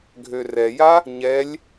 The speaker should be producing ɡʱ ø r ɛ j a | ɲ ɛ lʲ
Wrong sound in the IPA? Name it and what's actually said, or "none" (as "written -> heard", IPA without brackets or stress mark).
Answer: none